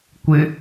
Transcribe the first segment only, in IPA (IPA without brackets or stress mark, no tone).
kʷ